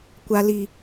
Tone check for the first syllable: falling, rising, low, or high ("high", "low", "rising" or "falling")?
low